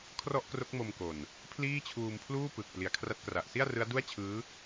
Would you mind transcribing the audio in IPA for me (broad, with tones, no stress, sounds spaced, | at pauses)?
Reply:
kʰ r ɔ˥˩ ʔ k r o˦˥ k̚ m o˧ m k o˨˩ n | pʰ l iː˥˩ t͡ɕʰ uː˧ m pʰ l uː˥˩ p ɯ˨˩ k̚ p l i˨˩ a̯ kʰ r a˦˥ t̚ k r a˨˩ ʔ s i˥˩ a̯ r ɯ˦˥ a̯ d u˥˩ a̯ t͡ɕʰ ɯː˦˥